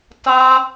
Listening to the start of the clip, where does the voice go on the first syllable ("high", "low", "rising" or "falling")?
high